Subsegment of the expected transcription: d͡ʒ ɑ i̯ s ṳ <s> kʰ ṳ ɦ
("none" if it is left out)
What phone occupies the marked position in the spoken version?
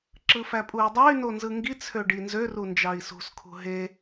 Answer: s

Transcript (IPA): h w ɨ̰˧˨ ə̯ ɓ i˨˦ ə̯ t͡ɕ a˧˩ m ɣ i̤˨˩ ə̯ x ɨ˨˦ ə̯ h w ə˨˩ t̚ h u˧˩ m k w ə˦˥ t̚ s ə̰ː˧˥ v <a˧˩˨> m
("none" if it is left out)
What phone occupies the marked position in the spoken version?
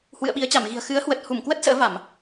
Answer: a˧˩˨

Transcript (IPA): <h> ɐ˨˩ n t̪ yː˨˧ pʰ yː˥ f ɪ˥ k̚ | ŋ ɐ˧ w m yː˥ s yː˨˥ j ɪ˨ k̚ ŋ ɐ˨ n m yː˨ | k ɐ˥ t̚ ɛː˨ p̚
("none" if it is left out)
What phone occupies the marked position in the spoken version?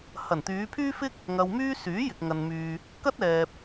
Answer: h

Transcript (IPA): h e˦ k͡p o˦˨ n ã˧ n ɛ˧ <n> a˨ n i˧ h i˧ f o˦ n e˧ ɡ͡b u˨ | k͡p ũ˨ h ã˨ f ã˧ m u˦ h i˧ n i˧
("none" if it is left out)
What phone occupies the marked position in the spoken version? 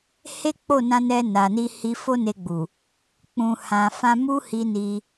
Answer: n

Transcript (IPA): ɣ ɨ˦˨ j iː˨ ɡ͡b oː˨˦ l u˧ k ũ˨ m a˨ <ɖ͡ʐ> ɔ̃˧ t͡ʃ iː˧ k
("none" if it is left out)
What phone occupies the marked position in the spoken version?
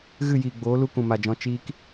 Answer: d͡ʒ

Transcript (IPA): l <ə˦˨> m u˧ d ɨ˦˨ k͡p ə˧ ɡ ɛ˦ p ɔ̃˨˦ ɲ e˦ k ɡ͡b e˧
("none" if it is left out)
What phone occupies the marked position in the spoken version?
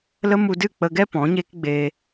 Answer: ə˦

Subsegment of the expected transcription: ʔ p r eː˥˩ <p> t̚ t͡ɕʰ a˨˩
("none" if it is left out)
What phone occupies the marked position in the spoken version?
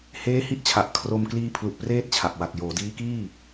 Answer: none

